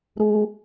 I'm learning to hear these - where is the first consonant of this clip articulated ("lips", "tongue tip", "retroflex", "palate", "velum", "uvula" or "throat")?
tongue tip